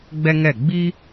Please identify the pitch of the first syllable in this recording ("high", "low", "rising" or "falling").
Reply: high